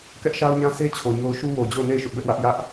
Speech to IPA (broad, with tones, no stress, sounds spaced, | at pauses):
k ɛ˦ ʔ ʃ a˦ ʊ̯ ɲ ã˦ sʰ e˦ t͡ɕʰ o˨ ɲ o˦ ʊ̯ ʃ u˦ w o˨ d͡ʑ o˦˨ ʊ̯ n e˦˨ ɪ̯ ʃ ʊ˦ ʔ b ɛ˦ ʔ w ä˦ ʔ j ä˦ ʔ